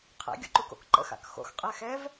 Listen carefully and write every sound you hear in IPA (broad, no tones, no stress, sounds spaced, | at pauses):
qʰ ɛ̰ ɡʲ o̰ ǃ u k o̰ k ǃ ə̰ x a̰ k x o̰ x qʼ ɛ x ɛ v